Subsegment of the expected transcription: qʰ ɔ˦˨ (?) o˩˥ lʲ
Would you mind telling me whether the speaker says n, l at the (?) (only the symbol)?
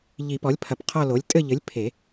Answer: l